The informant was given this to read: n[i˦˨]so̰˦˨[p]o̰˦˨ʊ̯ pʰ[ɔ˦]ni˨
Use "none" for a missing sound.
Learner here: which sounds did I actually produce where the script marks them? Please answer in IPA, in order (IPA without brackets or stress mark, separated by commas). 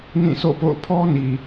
ĩ˦˨, p, ɔ˦